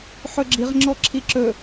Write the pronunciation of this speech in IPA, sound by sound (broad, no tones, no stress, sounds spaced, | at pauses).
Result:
ħ ɵ ɡ͡ǁ i ʁ ŋ͡ǁ ɔ ǁʰ i ǁ ɵ